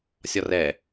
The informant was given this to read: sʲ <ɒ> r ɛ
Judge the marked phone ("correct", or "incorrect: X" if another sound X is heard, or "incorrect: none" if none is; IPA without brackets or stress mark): correct